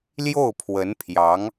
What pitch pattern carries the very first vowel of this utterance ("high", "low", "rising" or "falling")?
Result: falling